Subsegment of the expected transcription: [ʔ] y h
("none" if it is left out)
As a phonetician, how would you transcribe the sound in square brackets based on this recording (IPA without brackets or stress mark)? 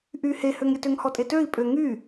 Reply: ʔ